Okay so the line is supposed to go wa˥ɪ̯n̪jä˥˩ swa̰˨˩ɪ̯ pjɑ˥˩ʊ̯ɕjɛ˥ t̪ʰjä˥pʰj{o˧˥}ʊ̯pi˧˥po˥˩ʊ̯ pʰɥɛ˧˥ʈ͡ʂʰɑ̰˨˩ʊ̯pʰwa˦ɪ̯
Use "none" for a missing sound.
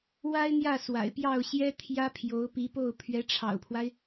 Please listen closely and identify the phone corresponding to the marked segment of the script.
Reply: o˧˥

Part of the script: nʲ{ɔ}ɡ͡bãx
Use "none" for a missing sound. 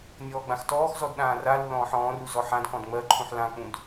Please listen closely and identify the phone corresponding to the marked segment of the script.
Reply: ɔː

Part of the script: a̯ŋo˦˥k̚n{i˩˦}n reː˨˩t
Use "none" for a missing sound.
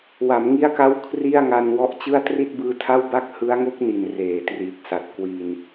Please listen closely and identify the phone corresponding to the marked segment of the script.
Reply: i˨˩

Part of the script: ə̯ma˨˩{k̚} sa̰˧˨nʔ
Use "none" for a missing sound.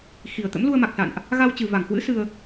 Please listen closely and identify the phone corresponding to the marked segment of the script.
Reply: k̚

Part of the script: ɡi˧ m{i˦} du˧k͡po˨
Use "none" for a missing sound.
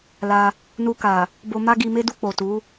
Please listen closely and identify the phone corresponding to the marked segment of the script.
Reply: e˦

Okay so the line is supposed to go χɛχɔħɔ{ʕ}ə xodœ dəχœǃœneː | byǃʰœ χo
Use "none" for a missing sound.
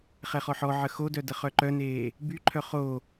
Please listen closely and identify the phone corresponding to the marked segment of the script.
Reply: ʕ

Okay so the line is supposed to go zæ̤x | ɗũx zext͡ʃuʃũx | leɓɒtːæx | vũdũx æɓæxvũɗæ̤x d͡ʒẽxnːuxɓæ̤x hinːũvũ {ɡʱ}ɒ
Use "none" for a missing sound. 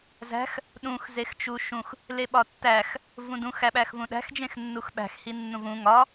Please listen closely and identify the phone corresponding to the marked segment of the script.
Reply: ŋ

